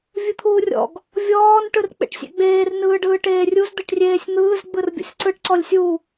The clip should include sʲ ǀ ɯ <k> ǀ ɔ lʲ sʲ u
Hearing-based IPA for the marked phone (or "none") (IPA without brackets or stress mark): ʈ